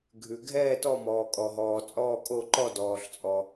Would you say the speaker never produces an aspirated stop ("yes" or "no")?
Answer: yes